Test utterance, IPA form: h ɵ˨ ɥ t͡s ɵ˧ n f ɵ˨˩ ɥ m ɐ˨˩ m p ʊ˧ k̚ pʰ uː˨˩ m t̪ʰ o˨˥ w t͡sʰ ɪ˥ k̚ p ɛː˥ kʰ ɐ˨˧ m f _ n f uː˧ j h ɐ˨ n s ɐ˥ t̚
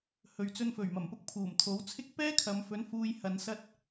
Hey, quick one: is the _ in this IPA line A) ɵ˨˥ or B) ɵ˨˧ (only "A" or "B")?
A